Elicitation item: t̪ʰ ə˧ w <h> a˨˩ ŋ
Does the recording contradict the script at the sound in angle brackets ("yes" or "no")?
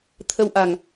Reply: yes